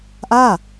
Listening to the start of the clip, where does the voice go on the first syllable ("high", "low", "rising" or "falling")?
falling